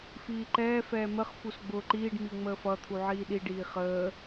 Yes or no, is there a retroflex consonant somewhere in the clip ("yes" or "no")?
yes